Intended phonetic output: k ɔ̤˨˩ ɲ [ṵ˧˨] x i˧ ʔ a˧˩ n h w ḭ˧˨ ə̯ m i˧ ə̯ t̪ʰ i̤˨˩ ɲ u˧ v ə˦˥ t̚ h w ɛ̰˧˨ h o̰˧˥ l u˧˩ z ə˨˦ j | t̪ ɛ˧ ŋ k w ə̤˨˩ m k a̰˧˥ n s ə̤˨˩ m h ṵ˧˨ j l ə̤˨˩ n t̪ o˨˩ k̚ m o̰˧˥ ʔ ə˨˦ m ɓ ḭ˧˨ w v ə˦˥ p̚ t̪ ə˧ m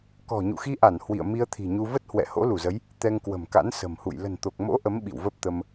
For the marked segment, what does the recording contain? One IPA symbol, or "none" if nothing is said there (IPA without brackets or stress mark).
ṵ˧˨